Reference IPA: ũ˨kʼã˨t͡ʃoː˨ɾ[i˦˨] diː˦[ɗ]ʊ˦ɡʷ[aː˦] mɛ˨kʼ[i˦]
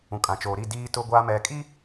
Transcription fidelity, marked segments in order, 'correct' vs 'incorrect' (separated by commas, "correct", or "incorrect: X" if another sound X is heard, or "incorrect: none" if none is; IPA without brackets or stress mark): correct, incorrect: t, correct, correct